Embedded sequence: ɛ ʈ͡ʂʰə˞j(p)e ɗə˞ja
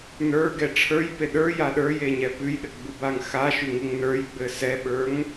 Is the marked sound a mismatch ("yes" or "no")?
no